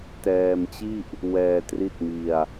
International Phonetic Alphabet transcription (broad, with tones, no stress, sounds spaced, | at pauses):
t ɛː˧ m t͡ɕ i˥˩ ʔ | w ɛː˧ t r i˥˩ t̚ m i˧ a̯